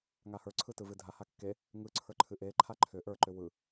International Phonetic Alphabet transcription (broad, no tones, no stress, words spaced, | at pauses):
ŋahə˞ǀʰɯ tɯvɨdʱaha kːe | ŋɯǀʰə˞ ǃʰɨʔeǃʰa ǃʰʏ ʔə˞ǃʏ wɯ